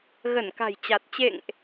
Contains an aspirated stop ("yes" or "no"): no